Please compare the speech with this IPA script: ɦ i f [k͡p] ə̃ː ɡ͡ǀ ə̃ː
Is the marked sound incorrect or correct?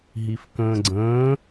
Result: incorrect: k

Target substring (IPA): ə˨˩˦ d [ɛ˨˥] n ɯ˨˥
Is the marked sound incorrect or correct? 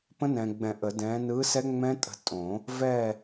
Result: incorrect: ɛ̃˨˥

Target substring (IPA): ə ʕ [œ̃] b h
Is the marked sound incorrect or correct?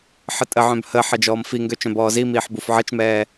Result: correct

